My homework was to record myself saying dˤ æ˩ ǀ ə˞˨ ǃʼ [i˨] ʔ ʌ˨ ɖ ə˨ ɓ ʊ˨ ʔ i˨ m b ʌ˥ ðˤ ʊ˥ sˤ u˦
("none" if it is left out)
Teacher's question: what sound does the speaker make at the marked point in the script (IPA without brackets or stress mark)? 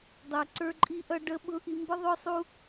i˨